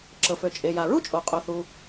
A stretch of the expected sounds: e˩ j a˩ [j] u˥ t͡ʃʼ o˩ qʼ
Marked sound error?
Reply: yes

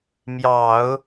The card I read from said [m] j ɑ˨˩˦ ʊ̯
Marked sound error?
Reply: no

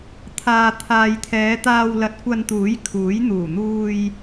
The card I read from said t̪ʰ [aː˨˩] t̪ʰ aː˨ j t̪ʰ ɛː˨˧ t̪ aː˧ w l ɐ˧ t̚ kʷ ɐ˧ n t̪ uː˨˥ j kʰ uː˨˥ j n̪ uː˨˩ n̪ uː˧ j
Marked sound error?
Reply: yes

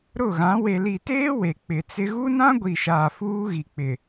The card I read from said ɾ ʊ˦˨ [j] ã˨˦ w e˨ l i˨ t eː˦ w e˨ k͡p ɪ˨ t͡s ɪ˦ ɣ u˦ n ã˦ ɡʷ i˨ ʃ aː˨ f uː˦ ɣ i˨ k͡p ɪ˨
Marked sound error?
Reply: yes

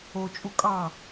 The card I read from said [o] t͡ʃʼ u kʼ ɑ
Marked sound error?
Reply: no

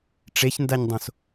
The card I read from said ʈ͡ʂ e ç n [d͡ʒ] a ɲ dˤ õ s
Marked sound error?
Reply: yes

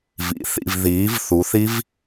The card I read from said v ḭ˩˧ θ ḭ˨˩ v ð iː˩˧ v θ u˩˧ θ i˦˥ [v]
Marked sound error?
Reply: no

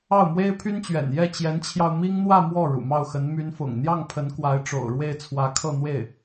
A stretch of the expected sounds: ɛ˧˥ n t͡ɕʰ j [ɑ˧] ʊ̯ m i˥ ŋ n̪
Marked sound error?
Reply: no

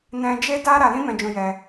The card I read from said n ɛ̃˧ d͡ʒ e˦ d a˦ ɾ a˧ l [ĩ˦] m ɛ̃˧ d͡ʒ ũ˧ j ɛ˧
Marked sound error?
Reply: no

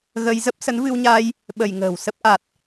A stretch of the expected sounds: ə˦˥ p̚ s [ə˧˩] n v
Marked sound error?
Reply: yes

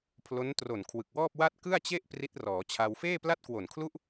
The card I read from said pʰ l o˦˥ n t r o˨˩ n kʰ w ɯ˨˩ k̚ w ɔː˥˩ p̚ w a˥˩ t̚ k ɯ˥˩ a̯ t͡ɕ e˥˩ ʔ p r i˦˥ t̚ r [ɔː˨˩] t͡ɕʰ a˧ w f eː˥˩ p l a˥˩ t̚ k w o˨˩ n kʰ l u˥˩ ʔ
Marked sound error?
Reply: yes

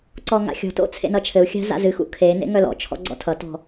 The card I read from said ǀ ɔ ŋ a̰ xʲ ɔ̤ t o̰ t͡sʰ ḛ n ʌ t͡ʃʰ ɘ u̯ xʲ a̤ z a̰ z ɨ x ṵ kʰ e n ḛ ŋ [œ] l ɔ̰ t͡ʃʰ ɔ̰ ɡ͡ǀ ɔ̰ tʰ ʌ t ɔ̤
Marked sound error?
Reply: no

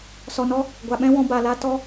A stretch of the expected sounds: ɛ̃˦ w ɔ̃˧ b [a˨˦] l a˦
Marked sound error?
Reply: yes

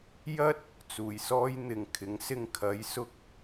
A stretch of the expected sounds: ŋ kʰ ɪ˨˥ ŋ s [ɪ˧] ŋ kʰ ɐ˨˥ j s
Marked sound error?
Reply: no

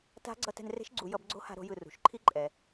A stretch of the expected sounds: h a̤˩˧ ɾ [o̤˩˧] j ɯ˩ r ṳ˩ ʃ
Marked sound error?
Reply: no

